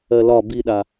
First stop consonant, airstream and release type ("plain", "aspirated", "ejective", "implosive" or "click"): plain